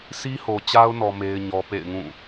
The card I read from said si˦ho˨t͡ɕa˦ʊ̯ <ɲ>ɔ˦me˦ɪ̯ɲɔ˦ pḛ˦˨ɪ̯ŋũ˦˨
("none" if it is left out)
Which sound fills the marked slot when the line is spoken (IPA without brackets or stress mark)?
n